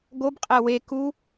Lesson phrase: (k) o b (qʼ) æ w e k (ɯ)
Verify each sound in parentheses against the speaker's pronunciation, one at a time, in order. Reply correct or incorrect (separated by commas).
incorrect, correct, incorrect